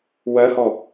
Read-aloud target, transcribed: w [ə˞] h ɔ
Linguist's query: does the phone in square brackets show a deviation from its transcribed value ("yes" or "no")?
yes